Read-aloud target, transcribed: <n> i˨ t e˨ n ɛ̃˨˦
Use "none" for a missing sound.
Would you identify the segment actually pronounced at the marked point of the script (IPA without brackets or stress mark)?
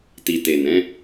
t